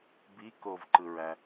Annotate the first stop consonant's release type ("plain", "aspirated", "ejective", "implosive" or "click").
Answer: plain